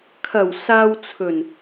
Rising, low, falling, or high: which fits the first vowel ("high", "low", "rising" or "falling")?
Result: low